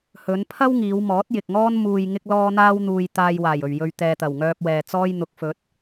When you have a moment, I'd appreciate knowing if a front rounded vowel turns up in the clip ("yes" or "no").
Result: yes